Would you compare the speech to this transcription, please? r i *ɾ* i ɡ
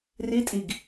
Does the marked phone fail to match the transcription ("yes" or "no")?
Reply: yes